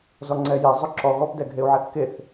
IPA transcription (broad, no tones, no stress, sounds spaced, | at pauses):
z ɔ ŋ͡ǀ ɛ j e zˤ ʊ ǁ ɔ ɣ ɔ p d ɛ ɡʱ e u̯ ʕ ɛ θ k e θ